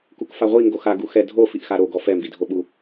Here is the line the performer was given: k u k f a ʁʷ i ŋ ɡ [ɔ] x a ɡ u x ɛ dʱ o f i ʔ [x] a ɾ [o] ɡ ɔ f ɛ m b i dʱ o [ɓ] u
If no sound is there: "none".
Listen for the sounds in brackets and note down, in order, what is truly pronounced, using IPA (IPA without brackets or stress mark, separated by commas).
o, x, o, ɓ